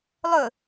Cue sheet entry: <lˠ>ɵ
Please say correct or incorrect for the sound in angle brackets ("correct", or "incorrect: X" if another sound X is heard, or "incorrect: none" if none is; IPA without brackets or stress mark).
correct